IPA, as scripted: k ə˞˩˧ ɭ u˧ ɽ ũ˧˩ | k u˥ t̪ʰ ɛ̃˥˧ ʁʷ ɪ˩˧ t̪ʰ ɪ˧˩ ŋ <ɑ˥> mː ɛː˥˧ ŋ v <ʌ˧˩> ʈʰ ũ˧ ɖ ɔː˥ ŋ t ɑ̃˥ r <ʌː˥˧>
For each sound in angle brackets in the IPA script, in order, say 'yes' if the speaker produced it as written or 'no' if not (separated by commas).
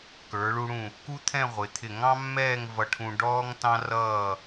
no, no, yes